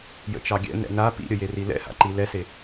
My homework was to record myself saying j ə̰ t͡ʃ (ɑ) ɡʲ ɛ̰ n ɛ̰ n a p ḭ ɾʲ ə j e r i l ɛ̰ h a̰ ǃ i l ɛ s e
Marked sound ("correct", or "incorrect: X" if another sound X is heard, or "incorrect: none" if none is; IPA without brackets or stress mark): correct